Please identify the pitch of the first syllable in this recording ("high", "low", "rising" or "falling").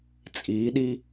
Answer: rising